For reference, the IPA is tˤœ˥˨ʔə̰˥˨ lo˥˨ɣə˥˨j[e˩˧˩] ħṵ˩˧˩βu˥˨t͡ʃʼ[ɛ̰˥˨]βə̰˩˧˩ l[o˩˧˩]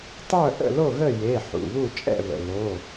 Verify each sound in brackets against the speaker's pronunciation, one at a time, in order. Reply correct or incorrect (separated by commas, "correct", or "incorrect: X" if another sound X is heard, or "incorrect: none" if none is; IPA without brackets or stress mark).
correct, correct, correct